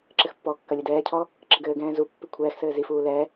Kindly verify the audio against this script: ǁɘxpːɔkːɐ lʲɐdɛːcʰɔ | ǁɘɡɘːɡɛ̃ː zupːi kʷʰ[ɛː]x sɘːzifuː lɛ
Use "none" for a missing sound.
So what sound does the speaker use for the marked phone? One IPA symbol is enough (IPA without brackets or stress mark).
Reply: ɛː